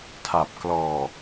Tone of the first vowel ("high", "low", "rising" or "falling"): low